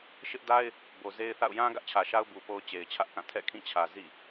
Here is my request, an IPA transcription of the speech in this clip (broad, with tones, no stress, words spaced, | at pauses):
ʃɪ˦ʔda˦ɪ̯ | bo˨ ze˦ɪ̯θa̰˦˨ʊ̯ jã˦ ɡä˦ʔt͡ɕʰä˨ʃa˦ʊ̯ bu˨po˦ʊ̯t͡ɕe˨ɪ̯ t͡ɕʰä˦ʔkã˦˨ tʰɛ̰˦˨kʰĩ˦˨t͡ɕʰä˨ zḭ˦˨